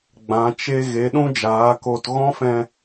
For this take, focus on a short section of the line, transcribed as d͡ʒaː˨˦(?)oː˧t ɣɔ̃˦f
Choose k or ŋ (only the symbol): k